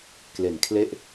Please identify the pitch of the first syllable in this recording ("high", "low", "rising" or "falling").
low